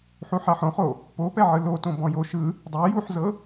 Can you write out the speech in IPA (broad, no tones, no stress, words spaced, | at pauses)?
ħuħaħõχo | popɛ ʕɯlotõ bɔ̃jo ʃɯ | dˤe juħzɤ